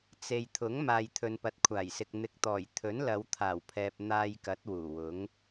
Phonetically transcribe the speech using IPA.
t͡s e˨ j t̪ʰ ʊ˨˥ ŋ m aː˨ j t̪ʰ ɵ˨ n p ɐ˨ t̚ kʷʰ aː˨˩ j s ɪ˨ k̚ n̪ ɪ˨ k̚ t̪ ɔː˨˩ j t̪ʰ ɵ˨˥ n l ɐ˨˧ w t̪ʰ aː˨˩ w pʰ ɛː˨ p̚ n̪ aː˧ j k ɐ˨˥ t̚ w uː˨˩ w ʊ˨˥ ŋ

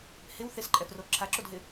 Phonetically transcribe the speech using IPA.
h ɪ w θ ɪ s ǃʼ ɛ f r o ǁʰ a ǁ o d ɦ ɪ

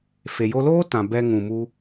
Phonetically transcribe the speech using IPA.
f e˨ j o˧ l oː˦ t ã˨ b ɛ˧ ŋ ũ˨ m u˧

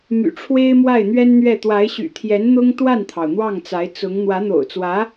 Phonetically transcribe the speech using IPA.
m y̰˨˩ ʈ͡ʂʰ w e˥ ɪ̯ m w a˥˩ ɪ̯ n̪ ɥ ɛ˥ n n̪ ɥ ɛ˥˩ t̪ w a˧˥ ɪ̯ ɕ y̰˨˩ t̪ʰ j ɛ˧˥ n n̪ ʊ˥ ŋ t̪ w a˥˩ n t̪ʰ ɑ˩ ʊ̯ n̪ w ɑ˥˩ ŋ t͡s a˧˥ ɪ̯ t͡s ʊ˧˥ ŋ n̪ w ä˧˥ n̪ o̰˨˩ ʊ̯ t͡s w ä˧˥

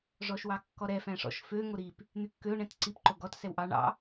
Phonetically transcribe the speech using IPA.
ʐ ɔ ʃ w ɑ kː ɔ ɾ ɛ f æ̃ ʂ ɔ̰ ʃ f ø ŋ o ɾ i p | n̪ y kː ø ʊ̯ ɳ ɛ̃ t ǀ i p ǃ o ɡ ɔ t s ɛ w ʔ ɑ ɳ ɑ̰

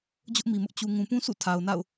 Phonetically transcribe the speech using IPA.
d͡ʑ ʊ˦ ʔ m i˨ m ʊ˦ ʔ t͡ɕ u˨ ŋ ũ˨ p ũ˦ sʰ ṵ˦˨ tʰ a˨ ʊ̯ n a̰˦˨ ʊ̯

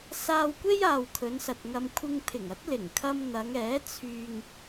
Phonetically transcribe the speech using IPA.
s aː˧ w kʷ e˥ j aː˨ w kʰ ɵ˨˧ n s ɐ˨ t̚ ŋ ɐ˧ m kʷʰ ɪ˧ ŋ pʰ ɪ˨˩ ŋ ɐ˨˥ t̚ l ɪ˨˩ ŋ kʰ ɐ˧ m n̪ ɐ˨˧ ŋ ɛː˨˥ t͡sʰ yː˧ ŋ

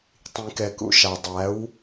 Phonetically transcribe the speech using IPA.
tˤ ĩ˨ k ɛ˨ k ṵ˨ ʃ a˨ dˤ æ˨˦ w

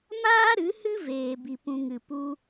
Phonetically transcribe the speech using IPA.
m aː˦ ɾ ɨ˨˦ h ɨ˦ v eː˧ b i˧ p ũ˧ ŋ ɨ˨ p u˦

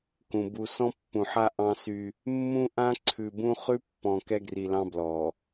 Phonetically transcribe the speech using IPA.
k ũ˨ b u˨ s ɔ̃˦ pː ũ˨ ħ a˦ ʔ ɑ̃˦ s y˦ | mː ũ˦ ʔ ã˦ ǀʰ ʉ˨ b ũ˦ χ ʉ˦ pː ɔ̃˨ k ɛ˦ ɡ r i˨ l ɑ̃˦ b l ɔ˨

